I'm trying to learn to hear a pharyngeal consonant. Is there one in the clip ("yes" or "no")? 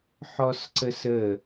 yes